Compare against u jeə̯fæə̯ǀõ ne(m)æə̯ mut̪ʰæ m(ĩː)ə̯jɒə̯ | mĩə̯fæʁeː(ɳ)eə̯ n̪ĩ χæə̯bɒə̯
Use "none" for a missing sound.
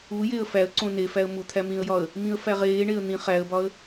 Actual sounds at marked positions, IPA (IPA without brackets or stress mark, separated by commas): f, ĩ, ɳ